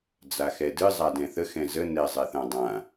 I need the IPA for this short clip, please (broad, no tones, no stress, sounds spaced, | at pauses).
d͡z a x ɛ d ɨ zˤ a d ɛ̃ θ ə x ɛ̃ z ə n ɛ zˤ ɛ θ ã dˤ ã